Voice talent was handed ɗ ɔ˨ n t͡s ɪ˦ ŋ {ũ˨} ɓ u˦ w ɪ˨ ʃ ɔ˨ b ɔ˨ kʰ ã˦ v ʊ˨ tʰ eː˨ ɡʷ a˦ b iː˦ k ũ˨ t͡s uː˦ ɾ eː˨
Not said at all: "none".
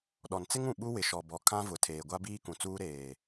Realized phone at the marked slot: ũ˨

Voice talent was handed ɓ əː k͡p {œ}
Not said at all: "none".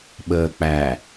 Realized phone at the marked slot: æ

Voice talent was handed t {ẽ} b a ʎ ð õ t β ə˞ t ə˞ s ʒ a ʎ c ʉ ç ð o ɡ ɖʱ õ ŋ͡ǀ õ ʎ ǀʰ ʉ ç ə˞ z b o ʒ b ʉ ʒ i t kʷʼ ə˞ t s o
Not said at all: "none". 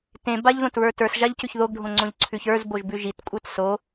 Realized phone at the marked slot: ẽ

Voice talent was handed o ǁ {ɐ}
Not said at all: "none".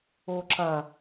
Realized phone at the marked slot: ɐ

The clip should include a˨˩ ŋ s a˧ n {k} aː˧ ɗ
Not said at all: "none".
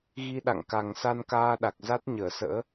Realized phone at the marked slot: k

